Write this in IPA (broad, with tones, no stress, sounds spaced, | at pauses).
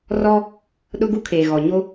r ɔ˦ | ɗ ʊ˦ ɡ u˦ kʰ eː˨ ɣ ɔ˨ ɲ o˦